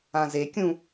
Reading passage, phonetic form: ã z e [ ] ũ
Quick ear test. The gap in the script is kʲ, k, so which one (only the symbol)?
kʲ